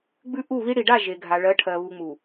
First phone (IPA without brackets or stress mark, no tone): ɡ͡b